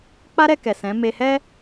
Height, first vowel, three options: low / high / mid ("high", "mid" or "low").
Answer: low